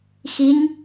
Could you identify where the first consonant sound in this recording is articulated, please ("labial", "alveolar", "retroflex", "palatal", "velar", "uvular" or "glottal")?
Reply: velar